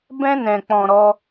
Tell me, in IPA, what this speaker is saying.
b ɛ̃˦ n ɛ̃˧ k͡p ɔ̃˧ ɾ ɔ˦

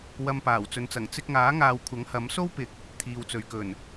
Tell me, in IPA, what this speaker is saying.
w ɐ˧ m p aː˨˩ w t͡s ɵ˨ n t͡s ɐ˨˩ ŋ t͡s ɪ˧ k̚ ŋ aː˨˥ ŋ aː˨ w kʷʰ ɐ˨˥ ŋ h ɐ˨˥ m s o˥ w p ɪ˨˥ k̚ | t̪ʰ iː˨ w t͡s ɵ˨ ɥ k ɵ˨˩ n

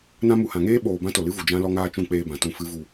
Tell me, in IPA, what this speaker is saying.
n ã˧ m u˨ h ã˨ ŋ eː˦ ɓ oː˨ b ã˦ t o˨ l ɨ˦ v u˨ d͡ʒ ã˧ l ɔ˧ ŋ aː˧ t͡ʃ ũ˦˨ k͡p eː˧ b ã˨ t ũ˦˨ f ɨ˦ v u˧

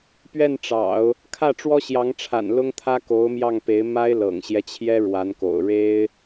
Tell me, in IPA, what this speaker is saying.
p ɥ ɛ˥˩ n ʈ͡ʂ ɑ̰˨˩˦ ʊ̯ | kʰ ä˥˩ ʈ͡ʂ w ɔ˥ ɕ j ɑ˧˥ ŋ ʈ͡ʂʰ a̰˨˩ n l ʊ˥ ŋ t̪ʰ ä˥ k o˧˥ ʊ̯ m j ɑ˥˩ ŋ p e˧˥ ɪ̯ m a˥ ɪ̯ l ɤ̰˨˩ ŋ ɕ j ɛ˦ t͡ɕʰ j ɛ˥ ɻ w a˧˥ n k o̰˨˩ ʊ̯ ɻ e˥ ɪ̯

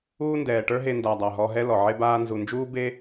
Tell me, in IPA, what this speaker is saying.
uː˦ n d ɛː˨ ʈ ə˞˦ ɦ e˧ n d a˨ dˤ a˨ ɦ ɔ˧ ɦ ɛ˦ l ɔ˨ ʕ e˧ b aː˧ n z u˨ n d͡ʒ uː˦ b e˦

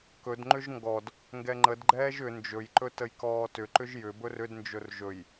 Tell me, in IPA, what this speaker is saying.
k ɵ d ŋ͡ǃ ʏ ʒ ŋ ɡ ɔ d | ŋ ɡ ɛ ŋ͡ǃ ə d ɡ͡ǃ ɛː ʒ ʏ n d͡ʒ ɵ j ǃ ɵ t ə j k ɔː t ʏ ǃ ʏ ʒ j ʏ b ɵ r ʏ d n d͡ʒ ɵ r ʒ ɵ j

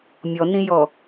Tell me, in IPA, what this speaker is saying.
mʲ ɔ n ĩ j ɔ

